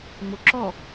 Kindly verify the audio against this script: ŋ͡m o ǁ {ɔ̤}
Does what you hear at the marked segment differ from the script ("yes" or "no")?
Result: yes